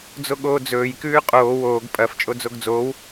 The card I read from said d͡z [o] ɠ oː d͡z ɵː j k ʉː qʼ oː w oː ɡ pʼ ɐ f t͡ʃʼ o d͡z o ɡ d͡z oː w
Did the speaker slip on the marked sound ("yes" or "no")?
no